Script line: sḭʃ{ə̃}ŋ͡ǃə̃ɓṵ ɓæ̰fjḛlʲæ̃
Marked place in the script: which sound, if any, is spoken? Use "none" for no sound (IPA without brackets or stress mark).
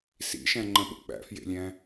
æ̃